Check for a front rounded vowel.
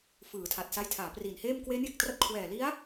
absent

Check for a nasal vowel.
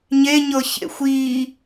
absent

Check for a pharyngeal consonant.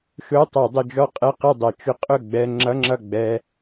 absent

